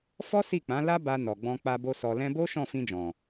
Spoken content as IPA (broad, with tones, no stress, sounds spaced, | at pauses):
f ɔ˦ s i˦˨ k͡p ã˨˦ l a˦ b a˧ n ɔ˨ ɡ͡b ɔ̃˧ k͡p a˧ b o˧ s ɔ˧ l ɛ̃˧ b o˦ ʃ ɔ̃˦˨ f ĩ˧ d͡ʒ ɔ̃˨